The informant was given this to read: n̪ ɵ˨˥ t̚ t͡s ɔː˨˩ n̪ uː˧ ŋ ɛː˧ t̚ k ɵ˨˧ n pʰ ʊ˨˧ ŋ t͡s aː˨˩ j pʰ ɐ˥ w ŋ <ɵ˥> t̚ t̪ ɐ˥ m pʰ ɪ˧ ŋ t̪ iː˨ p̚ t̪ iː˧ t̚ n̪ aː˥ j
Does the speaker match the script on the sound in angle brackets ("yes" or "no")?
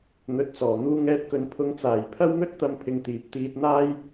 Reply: yes